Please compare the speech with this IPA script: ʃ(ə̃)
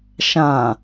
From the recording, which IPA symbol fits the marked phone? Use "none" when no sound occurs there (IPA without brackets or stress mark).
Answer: ã